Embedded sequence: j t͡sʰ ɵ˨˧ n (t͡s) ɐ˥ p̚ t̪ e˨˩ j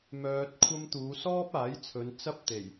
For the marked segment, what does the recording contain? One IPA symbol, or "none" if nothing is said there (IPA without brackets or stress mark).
t͡s